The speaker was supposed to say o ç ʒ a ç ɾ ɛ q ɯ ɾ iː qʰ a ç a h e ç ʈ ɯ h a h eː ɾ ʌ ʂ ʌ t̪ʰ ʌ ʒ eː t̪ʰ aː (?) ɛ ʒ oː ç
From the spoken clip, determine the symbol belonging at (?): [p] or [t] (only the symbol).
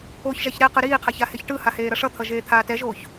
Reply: t